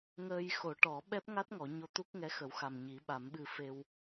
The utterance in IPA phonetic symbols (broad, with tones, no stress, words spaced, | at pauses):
ŋəː˧jxo˨˩˦ʈɔ˨˩˦ ɓɛ˦˥p̚ŋa˦˥t̚ŋɔ˨˩˨ ɲo˧t̪u˦˥k̚ŋɛ˧˥ xə˨˩˦wxa˨˩m ɲi˨˩˦ɓa˨˩˦mɓɨ˧ fe˧w